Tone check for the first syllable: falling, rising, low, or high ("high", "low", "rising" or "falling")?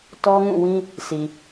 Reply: high